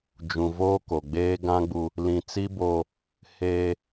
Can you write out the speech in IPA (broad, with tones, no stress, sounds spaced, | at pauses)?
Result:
d͡ʒ ũ˨ v oː˦ k o˨ ɡ͡b eː˦ ɡ ã˦ ɡ͡b u˦ | l ĩ˨ t͡s i˦ b oː˦ | h eː˦